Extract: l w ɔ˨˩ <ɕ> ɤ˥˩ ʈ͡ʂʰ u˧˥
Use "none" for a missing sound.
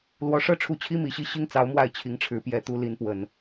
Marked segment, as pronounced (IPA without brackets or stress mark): ʂ